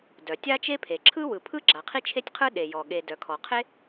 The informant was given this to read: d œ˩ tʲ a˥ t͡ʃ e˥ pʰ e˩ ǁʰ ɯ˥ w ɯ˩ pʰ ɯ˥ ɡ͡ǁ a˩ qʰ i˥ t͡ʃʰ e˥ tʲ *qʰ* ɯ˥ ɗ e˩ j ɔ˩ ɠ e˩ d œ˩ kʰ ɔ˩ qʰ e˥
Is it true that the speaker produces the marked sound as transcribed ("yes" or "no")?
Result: yes